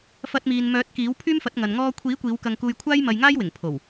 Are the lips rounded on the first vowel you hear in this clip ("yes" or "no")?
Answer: no